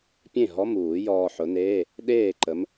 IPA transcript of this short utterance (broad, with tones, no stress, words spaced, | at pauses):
pʲẽ˥˩ɦɔ˧˥˧muː˨˩˦ jɔː˧ħʊ˨˥neː˧˥˧ | ɗeː˥˩ǃə˨˥m